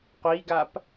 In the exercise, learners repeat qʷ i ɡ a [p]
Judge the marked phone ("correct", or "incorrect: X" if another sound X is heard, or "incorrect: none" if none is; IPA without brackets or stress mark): correct